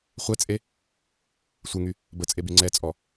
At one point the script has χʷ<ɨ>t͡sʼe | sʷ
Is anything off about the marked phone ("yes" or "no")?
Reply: yes